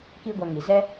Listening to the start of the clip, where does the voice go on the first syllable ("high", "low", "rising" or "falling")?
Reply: high